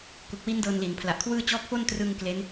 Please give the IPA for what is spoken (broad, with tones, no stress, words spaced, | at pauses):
ku˨˩k̚wi˦˥n dɤː˧nli˩˦npʰla˨˩ʔkʰwɯː˥˩ t͡ɕɔː˦˥k̚fo˥˩ntrɯː˧ŋ kle˦˥n